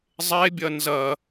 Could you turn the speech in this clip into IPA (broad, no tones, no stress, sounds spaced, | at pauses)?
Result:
zˤ e bʲ ɐ n z ɐ